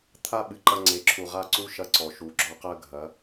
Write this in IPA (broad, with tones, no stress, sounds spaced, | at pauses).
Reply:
t̪ʰ a˦ ɓ ɨ˨ ǃ ɐ˦ ŋ͡ǀ e˨˦ ǁʰ u˨ ʁ a˦˨ ǀ u˦ ʃ ɐ˦ ǀ ɔ˨ ʃ u˨˦ ɡ͡ǁ ɔ˦ q ɜ˦ ɡʱ ɐ˨˦